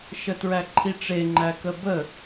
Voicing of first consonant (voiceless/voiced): voiceless